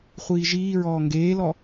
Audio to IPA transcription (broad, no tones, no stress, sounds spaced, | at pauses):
χʷ iː ʒ iː ɹ ɔː ŋ ɡ eː l ɔ